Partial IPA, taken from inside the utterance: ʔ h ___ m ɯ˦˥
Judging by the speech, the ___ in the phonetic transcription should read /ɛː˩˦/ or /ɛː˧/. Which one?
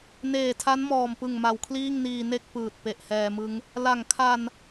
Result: ɛː˧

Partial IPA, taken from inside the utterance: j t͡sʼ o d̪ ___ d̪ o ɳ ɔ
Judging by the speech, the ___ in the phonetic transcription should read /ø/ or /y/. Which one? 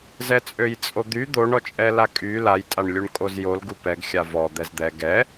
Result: y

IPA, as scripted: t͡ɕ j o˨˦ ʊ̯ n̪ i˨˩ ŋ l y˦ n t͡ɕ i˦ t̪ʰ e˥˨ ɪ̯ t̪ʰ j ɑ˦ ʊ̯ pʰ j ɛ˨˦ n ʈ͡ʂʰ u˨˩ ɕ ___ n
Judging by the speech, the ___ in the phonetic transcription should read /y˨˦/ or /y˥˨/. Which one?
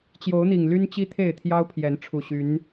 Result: y˨˦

